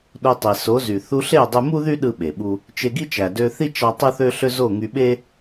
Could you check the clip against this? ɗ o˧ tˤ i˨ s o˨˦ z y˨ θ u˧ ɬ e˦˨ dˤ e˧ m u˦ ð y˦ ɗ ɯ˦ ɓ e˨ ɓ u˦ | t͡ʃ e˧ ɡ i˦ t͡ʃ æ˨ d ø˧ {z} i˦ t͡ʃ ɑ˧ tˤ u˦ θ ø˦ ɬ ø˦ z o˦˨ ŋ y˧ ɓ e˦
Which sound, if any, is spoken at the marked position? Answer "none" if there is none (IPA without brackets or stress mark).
θ